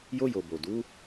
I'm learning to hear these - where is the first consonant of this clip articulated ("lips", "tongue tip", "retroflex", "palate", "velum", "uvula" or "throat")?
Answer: palate